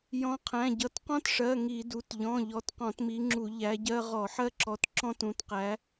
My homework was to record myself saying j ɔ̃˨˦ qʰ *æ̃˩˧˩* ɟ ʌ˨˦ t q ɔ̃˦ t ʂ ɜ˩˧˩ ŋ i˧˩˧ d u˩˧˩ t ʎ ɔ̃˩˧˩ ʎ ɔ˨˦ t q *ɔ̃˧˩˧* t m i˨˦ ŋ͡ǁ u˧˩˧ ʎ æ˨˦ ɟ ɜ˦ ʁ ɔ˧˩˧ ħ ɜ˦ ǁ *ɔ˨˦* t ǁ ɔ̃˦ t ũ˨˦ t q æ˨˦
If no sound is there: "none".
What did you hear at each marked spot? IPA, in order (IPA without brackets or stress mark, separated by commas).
æ̃˩˧˩, ɔ̃˧˩˧, ɔ˨˦